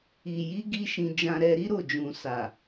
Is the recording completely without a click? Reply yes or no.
yes